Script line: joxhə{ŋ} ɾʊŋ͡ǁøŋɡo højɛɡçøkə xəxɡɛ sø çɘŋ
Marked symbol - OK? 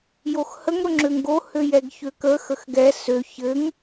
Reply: yes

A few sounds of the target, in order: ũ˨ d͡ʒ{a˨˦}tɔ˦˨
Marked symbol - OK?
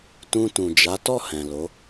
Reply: yes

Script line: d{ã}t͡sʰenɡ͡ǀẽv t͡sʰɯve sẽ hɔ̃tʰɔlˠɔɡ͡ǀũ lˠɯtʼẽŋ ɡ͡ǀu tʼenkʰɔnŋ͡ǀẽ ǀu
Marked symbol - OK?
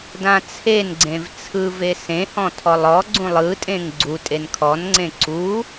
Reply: yes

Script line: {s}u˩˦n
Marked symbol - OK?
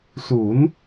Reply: yes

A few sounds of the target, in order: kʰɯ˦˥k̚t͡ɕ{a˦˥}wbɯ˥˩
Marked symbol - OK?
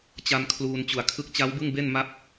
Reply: yes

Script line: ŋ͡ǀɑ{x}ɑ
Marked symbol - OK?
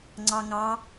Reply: no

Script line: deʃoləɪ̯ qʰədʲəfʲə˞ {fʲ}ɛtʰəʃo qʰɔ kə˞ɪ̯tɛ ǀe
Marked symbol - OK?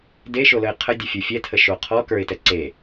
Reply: yes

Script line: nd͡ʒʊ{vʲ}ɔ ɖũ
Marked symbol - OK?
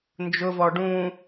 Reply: no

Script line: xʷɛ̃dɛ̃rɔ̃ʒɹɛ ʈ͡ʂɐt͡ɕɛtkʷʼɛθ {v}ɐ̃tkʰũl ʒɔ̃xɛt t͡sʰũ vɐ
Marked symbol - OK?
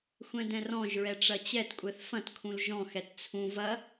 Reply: no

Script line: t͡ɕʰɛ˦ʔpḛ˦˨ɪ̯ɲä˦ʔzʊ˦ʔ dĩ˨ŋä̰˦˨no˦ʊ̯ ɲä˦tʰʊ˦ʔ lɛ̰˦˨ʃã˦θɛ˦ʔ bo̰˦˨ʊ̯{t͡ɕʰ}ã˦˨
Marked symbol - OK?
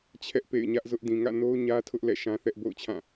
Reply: yes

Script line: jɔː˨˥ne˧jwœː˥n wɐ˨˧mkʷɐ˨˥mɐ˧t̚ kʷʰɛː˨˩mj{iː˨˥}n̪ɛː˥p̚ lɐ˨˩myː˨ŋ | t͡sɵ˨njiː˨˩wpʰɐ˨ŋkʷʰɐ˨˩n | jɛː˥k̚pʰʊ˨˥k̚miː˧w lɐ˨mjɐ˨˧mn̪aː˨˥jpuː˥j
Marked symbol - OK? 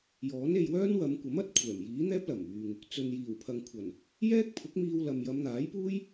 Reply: yes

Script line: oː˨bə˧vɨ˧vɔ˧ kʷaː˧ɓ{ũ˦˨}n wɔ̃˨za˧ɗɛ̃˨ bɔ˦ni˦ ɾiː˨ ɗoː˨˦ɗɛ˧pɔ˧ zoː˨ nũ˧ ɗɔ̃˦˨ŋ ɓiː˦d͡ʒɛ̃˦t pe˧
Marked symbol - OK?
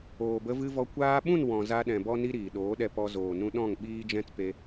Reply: yes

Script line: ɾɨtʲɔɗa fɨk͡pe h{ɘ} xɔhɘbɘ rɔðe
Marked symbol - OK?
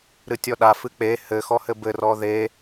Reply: yes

